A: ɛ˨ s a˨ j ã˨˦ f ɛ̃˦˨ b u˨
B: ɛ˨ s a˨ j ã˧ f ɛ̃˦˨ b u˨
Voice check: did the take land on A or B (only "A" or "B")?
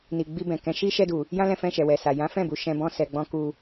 A